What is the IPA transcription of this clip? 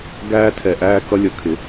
ɡ æː˦ tʰ ɛ˨ ʔ æː˦ k ʌ˦ lʲ ʌ˨ kʰ ɪ˨˦

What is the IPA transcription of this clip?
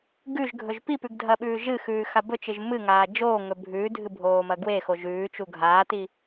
ɡ ʉ ʒ ɡʱ ɵ ʒ p i p ʉ ɡ dʱ ɐ ɓ ʉː ʒ ɨ x ʉː x a b ɵ t͡ʃ ɨ ʒ m ɨ ŋ aː d͡ʒ oː ŋ ɵ bʱ ʉː dʱ ɨ bʱ oː m ɐ ɡ w e x o ʒ ʉː t͡ʃ u ɡʱ aː t i

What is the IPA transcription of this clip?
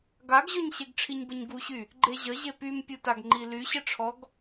ɡ a ɡ ʑ ø ɲ ɕ e ɡ ʈ͡ʂʰ i ɲ b ə ɲ ɡ u ɕ y | ɡ͡ǃ e ʑ ə ʑ e p y m pʲ u t a ɡ ŋ͡ǃ i l y ɕ ə ʈ͡ʂʰ ɔ ɡ

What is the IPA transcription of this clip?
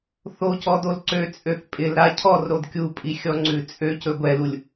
θ o c ɔ d o l ǀ ø t͡sʼ ø θ pʼ ɪ l ɾ a cʰ ɔ r ɾ o d kʲ u pʼ i xʲ ɔ ŋ͡ǀ ʉ t͡sʼ ø c ɵ ɡʷ ɛ l u lʲ

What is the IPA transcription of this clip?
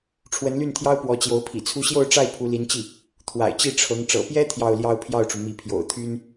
ʈ͡ʂʰ w ə˧˥ n l y˥˩ n t̪ʰ j ɑ˥ ʊ̯ p w ɔ˧˥ t͡ɕ j o˧˥ ʊ̯ pʰ ḭ˨˩ t͡sʰ u˥ ɕ j o˥˧ ʊ̯ ʈ͡ʂ a˥˩ ɪ̯ pʰ u˧˥ l i˧˥ n t͡ɕ i˥˩ | t̪ʰ w a̰˨˩ ɪ̯ t͡ɕ i˥˩ ʈ͡ʂʰ ɤ˧˥ ŋ ʈ͡ʂ ɤ̰˨˩ p j ɛ˥ t̪ʰ j ɑ˥˩ ʊ̯ l j ɑ˥ ʊ̯ pʰ j ɑ˥˩ ʊ̯ ʈ͡ʂ u˩ m i˧˥ pʰ j o̰˨˩ ʊ̯ t̪ʰ y˥ n

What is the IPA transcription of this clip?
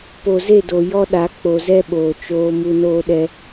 p o˨ z e˦˨ d o˨ j ɔ˦ ɗ a˨˦ k͡p o˨ z ɛ˦ ɓ oː˨ t͡ʃ oː˦ m u˦ n oː˦ ɗ ɛ˦

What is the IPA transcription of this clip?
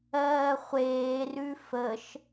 ɜː χʷ eː r ʉ f ə ʃ

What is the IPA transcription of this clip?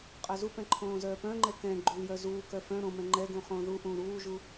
qʼ œ z u p ɛ̃ ǃʰ õː z œː p œ̃ ŋ͡ǃ ɛ k ɛ̃ ɡ͡ǃ u l j œ z uː k œ f œ̃ ɾ õ m ɛ̃ ŋ͡ǃ ɛ ɡ ũ χ õː ð u ʔ ũː ɾ uː ʒ u

